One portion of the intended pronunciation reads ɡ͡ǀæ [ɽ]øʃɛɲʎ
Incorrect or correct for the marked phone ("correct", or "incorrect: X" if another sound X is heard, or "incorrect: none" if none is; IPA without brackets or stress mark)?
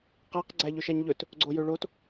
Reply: incorrect: ʎ